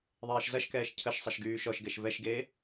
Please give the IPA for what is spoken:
ðˤeːʃzɐʃkɛːʃ cʰəʃsˤɐʃ ɡyːʃɔʃɡɛʃ vɛʃɡeː

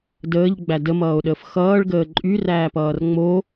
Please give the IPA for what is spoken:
dəːʎɡ͡bæ dəmʌːo̯ɗəːf xʌːɭɡəː ǃʼyræːpʌːr ŋ͡mo

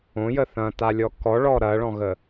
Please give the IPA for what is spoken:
õjə θɐ̃talʲɔ kɔɭɔ ɾɐɭɔ̃ɣə

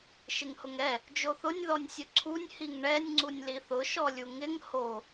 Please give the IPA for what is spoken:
ʃɪŋhʊŋɛ | d͡ʒoθʊnʲ ðɔnʲsʲʊǀʰunʲ hiŋɳɛnʲ ŋ͡ǀunʲliθʊ ʃɔlʲuŋɪŋ ho

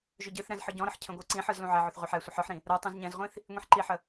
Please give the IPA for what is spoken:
ʒʏɟɨθɾɛ̃z ħɯɟɔ̃ɾəħ cʰə̃ɡʷə˞ǀĩħɯz lũʕɛʕʏθ ʁʷə˞ħɛsʷəħ ə˞ħɾĩ | ɾə˞ tˤũzɲɛ̃zʁʷĩθ | ŋʷĩħǃiħə

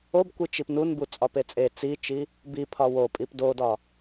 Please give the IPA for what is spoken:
obkʷi t͡ʃipnunbu t͡sʼɒpet͡sʼe t͡sit͡ʃi | bipʰɒ wopʼip dodɒ

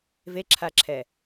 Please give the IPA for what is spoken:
veǁʰaǁʰɛ

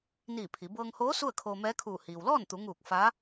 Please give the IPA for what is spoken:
niː˧˩ pʰi˩˧ bɤː˧ŋhoː˧˥ su˥˨ə̯kʰoː˧mɛː˧˥kʰuː˧˩ hiː˩wlɔː˥˨nt̪u˩˧ŋuː˧˩k̚ fa˧˥

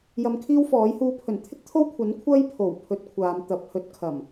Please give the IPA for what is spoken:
jɐ˧mkʰiː˥wfɔː˨˥jhuː˧ pʰɵ˨˩nt̪ʰɪ˥k̚t̪ʰo˥w kʷʰɐ˨˥n kʷʰɐ˥jpʰo˨˩w pʰɵ˨˥t̚ kʷʰaː˨˧m t̪ɐ˨p̚ hɵ˨˥t̚ kʰɐ˨˩m

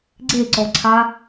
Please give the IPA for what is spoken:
ɡ͡ǀeǀɔǀʰa

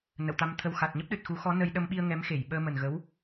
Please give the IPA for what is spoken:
nə̰˧˨wt̪a˧mt̪ʰə˧w xa˨˩t̚ ɲə˦˥p̚ɗɨ˨˩t̚xu˨˦xɔ˨˦ nə˧j ɗə˧mɓi˧ə̯ ŋɛ˨˦mxe˧˩jɓəː˧ mə˨˩nɣə˨˦w

